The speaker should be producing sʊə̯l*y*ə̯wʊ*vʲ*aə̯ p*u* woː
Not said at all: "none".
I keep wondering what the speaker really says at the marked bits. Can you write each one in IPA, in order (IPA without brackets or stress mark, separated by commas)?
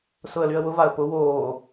y, v, ʊ